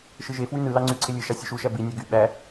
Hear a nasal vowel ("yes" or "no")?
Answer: no